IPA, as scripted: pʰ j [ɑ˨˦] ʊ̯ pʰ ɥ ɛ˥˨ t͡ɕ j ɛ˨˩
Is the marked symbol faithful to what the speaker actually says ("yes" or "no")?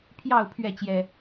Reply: no